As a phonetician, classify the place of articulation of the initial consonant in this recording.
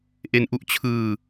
glottal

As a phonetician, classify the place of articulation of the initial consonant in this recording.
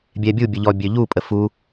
labial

